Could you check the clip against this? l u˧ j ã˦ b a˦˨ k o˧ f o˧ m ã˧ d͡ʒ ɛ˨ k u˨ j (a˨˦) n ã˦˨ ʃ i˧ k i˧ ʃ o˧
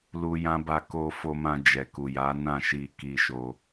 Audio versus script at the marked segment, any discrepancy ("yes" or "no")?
no